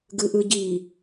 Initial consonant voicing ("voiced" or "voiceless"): voiced